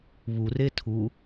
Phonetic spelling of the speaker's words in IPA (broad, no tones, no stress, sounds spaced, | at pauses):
β u r e tʰ u